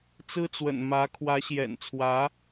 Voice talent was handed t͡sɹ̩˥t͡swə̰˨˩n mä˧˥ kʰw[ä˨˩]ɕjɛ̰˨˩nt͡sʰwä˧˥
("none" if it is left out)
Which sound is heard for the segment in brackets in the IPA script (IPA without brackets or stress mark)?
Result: ä˧˥